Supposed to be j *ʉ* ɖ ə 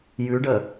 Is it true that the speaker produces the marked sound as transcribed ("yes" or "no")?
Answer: yes